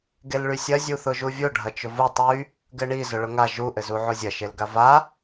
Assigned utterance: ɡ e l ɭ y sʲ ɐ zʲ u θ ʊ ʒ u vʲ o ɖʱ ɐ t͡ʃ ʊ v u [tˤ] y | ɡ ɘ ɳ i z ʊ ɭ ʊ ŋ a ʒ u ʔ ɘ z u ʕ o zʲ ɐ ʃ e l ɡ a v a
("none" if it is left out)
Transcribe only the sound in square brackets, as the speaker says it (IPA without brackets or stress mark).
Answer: tˤ